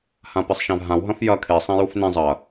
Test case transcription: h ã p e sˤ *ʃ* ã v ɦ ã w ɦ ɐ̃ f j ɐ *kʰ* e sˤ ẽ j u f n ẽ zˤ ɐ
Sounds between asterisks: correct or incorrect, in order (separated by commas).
correct, correct